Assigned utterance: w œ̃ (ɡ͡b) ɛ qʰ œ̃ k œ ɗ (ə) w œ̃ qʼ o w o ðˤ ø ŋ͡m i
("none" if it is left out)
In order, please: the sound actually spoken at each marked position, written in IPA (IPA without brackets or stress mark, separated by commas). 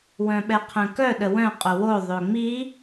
ɓ, ə